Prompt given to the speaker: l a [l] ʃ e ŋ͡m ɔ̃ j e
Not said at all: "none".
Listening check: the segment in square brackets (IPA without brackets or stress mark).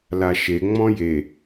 none